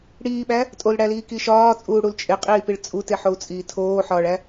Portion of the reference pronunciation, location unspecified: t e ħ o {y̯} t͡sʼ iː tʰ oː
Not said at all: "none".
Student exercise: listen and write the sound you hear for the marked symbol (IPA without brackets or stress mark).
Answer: u̯